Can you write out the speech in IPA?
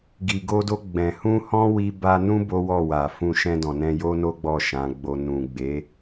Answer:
ɡ i˨ ɡ o˧ d o˧ ɡ͡b ɛ̃˨ h ũ˧ h ɔ̃˦ w i˧ b a˧ n ũ˦ b o˦ w ɔ˦˨ w a˨ f ũ˧ ʃ ɛ̃˧ d ɔ̃˨ n ɛ̃˧ j o˦ n o˦ ɡ͡b ɔ˦˨ ʃ ã˨˦ ɡ͡b o˧ n ũ˨ ɡ͡b e˨˦

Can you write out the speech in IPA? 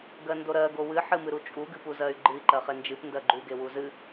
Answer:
ɡ ɜ n d o ɾ ɜ ɡ o w ɨ ħ ɨ m ɨ ɾ u t͡ʃʼ u ɡ ɨ p u z ɜ y̯ ɡ͡ǃ ɨ i̯ ǃ ɜ χ e n d͡ʒ ɨ p n d ɜ ɡ͡ǃ u ɡ e w u z ɨ

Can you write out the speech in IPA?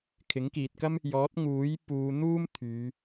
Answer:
kʰ ɪ˨˥ ŋ k iː˨ t̚ k ɐ˥ m | j ɔː˨˥ t̚ ŋ uː˨˥ j p uː˨˧ n̪ uː˥ m t̪ʰ yː˨˧

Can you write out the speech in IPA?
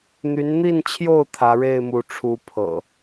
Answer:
n̪ y˨˦ n n̪ i˥˨ n t͡ɕʰ j o˥˨ ʊ̯ t̪ʰ ä˨˦ ɻ e˥˨ ɪ̯ m u˨˦ ʈ͡ʂʰ u˨˦ pʰ ɤ̰˨˩

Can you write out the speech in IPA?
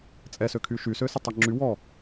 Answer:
t͡sʼ ɛ s ø kʰ y ʃ y s ø s ə tˤ ɛ ŋ͡ǁ y w ɔ

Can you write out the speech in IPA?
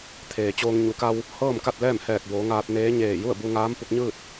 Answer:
t̪ʰ eː˩ t͡ɕ oː˧ ŋ ɲ u˩˧ k a˧ w | h ɤː˥˨ m k a˥˨ t̚ l ɛː˥˨ m h ɛː˧˩ k̚ b oː˩˧ ŋ aː˧ t̚ n eː˧˥ ɲ eː˧˩ j u˥˨ ə̯ b u˧ ŋ aː˧˥ m p u˧ k̚ ɲ ɯː˥˨ t̚

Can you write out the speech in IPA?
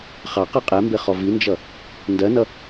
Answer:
χ ɑ q ɜ qʼ ɛ m b ɪ χ ɔ v i n d͡ʒ ʌ | n d ɜ n ʌ

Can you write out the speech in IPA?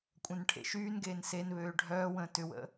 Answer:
kʷʼ œ̃ n ʈʰ ḛ ʃ yː n ɡ eː n s e n β øː ɖʱ œː w ə̃ː t ʏ w ə̰

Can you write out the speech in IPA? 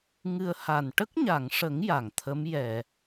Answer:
ŋ ɨ˧ ə̯ h a˨˩ n ʈ ə˦˥ k̚ ɲ a˨˩˨ ŋ ʂ ə˨˩˦ ŋ j a˨˩ ŋ t̪ʰ ə˧˥ m j ɛ˨˩˨

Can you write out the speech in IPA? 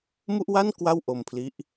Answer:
m u˥˩ ʔ w a˥˩ n k w a˥˩ w ʔ o˧ m pʰ l i˦˥ ʔ

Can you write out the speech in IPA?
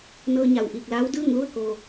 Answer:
n ɤː˧ ɲ a˩ w ʔ iː˧˩ k̚ l aː˧˥ w d ɯː˥˨ ŋ l u˥˨ ə̯ k oː˩

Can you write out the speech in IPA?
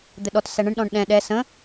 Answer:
d̪ ɘ ɗ ɔ t s æ ɳ ə̃ ɳ ɗ ɔ̃ ɳ ɗ ɛ̃ ɗ ɛ s ə̃

